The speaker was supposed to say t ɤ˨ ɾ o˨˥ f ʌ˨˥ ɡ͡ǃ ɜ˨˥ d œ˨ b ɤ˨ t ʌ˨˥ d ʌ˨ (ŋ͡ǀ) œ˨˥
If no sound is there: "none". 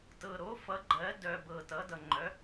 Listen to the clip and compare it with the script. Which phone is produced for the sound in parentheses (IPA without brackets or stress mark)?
ŋ͡ǃ